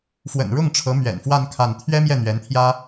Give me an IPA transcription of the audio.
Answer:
f w ə̰˨˩ n ɻ ʊ˥˩ ŋ ʈ͡ʂʰ ɤ˧˥ m ɥ ɛ̰˨˩ n f w a˥˧ n kʰ a˥˩ n t̪ʰ ɥ ɛ˥ m j ɛ˥˩ n̪ ɥ ɛ˧˥ n t̪ʰ j ä˥

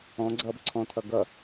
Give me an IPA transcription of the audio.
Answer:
ɔ̃ ɡ͡ǀ ʌː b ǀʰ ɔ̃ tʰ ʌ ɡ ʌ

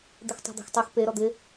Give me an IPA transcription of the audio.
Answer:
d̪ ɪ x tˤ ɛ̤ d̪ ɛ̤ x tˤ e x p e ɾ ɔ d̪ ɪ

